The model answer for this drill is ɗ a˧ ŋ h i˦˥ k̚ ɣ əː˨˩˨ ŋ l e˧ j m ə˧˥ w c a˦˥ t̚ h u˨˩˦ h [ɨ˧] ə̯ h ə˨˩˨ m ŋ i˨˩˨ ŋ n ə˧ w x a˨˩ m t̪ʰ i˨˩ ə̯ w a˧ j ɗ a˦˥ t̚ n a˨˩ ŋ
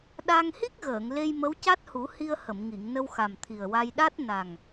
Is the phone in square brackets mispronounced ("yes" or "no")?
yes